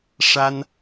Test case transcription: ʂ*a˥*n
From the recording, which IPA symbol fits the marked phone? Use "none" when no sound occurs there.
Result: a˥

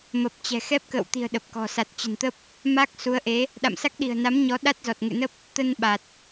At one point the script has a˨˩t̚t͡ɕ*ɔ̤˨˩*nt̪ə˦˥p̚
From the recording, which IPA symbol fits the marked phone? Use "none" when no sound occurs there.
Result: ə̤˨˩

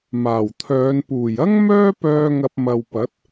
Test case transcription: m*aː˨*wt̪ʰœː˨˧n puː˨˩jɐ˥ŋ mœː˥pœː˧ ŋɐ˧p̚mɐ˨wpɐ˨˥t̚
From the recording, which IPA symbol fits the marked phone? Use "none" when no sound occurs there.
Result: aː˨˩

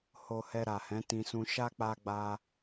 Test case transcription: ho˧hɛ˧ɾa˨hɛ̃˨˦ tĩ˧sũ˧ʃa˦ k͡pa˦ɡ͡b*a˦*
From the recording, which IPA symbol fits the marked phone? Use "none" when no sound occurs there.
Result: a˦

